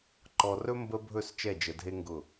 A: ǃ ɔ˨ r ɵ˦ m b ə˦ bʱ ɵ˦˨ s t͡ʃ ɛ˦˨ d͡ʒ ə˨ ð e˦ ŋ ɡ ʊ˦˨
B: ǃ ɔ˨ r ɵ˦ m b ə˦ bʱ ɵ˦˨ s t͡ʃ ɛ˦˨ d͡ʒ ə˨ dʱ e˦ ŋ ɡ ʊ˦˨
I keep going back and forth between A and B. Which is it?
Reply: B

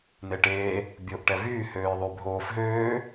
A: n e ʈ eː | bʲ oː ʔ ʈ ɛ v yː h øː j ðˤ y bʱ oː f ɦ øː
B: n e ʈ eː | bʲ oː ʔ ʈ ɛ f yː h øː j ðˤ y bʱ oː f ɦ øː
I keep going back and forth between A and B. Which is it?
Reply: A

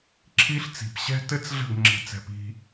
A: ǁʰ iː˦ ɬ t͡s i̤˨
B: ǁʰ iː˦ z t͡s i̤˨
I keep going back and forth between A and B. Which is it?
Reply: A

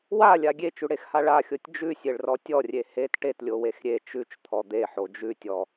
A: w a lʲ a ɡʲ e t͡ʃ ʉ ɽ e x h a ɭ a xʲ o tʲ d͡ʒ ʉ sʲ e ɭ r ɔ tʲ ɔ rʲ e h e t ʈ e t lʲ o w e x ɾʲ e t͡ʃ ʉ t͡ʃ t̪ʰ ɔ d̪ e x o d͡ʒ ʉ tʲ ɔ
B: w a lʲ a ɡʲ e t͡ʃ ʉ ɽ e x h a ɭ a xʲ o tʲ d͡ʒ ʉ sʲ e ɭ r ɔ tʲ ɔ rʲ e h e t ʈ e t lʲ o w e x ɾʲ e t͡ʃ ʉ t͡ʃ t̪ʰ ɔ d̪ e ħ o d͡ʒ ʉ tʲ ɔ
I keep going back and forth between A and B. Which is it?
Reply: B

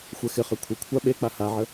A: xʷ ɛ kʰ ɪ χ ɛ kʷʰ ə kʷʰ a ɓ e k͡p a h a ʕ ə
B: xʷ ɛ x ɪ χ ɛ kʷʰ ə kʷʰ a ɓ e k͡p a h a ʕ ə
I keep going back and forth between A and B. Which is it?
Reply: B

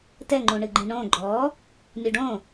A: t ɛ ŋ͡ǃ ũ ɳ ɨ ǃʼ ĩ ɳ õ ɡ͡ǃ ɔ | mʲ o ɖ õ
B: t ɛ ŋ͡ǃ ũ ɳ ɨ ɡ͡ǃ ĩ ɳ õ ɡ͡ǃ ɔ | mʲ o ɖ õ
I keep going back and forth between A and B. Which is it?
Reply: B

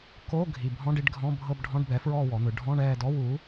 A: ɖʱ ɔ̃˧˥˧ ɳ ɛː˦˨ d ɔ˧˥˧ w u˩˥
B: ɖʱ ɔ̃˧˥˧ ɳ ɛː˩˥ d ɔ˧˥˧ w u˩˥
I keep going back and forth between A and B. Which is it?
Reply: A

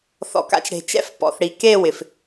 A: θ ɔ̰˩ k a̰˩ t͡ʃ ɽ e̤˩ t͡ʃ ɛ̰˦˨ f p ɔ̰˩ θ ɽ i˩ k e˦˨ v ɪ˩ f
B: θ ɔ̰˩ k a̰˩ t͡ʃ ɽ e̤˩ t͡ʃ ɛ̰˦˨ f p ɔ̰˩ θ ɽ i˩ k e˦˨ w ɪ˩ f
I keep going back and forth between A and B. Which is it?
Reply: B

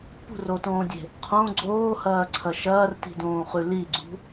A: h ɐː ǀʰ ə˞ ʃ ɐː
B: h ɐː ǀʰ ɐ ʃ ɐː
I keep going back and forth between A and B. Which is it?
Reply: B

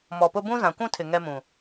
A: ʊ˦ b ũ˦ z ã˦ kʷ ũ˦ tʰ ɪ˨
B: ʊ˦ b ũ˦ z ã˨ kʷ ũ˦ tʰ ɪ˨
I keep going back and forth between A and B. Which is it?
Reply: B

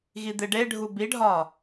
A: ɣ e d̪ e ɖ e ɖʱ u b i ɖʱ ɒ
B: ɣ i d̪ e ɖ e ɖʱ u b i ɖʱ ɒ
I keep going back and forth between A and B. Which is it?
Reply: B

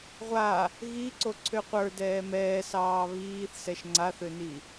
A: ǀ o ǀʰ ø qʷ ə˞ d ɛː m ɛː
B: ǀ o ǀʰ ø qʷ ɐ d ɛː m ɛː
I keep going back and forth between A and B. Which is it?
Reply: A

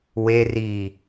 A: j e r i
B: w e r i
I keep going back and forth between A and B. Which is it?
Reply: B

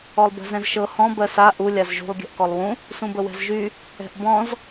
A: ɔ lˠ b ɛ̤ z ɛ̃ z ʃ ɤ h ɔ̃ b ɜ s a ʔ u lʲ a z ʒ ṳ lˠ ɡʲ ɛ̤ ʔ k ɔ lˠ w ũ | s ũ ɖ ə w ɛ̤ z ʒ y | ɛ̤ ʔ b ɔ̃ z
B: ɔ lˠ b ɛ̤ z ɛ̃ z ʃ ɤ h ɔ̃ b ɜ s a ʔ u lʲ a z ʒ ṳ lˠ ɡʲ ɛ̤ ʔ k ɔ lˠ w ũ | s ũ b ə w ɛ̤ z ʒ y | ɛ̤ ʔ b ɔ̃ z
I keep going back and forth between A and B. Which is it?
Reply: B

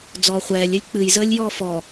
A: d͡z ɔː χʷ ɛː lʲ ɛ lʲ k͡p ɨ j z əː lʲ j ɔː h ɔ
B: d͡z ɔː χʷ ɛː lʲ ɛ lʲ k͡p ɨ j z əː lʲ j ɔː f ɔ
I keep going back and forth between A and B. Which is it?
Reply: B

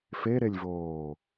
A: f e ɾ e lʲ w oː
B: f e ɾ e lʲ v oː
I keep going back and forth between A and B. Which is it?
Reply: B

